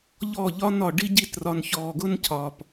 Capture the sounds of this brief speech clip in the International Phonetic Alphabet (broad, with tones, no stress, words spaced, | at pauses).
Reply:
ʎɔ˦˨ʎɒ˦nɒ˨ ɖi˦ɟi˦˨trɒ˨n çɔː˨ɡʊ˦ncʰɒː˨p